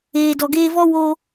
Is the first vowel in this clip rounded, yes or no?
no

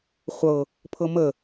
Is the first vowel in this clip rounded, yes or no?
no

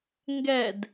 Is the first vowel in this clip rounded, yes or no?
no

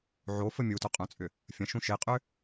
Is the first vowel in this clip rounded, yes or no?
yes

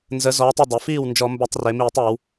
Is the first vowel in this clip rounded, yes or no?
no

